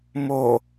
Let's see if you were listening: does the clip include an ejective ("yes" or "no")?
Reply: no